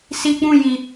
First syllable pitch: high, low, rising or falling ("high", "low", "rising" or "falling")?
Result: high